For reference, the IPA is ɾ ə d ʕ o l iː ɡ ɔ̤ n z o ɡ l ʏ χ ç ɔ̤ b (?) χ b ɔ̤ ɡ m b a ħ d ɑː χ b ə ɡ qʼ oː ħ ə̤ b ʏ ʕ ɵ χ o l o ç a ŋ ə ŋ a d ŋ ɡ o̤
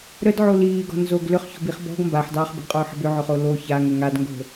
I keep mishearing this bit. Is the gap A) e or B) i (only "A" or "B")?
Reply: B